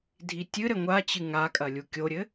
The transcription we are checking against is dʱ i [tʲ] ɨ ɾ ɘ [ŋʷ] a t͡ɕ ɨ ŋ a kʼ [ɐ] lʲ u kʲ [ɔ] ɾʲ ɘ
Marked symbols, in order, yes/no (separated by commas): yes, yes, yes, no